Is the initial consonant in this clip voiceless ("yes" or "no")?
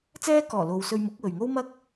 yes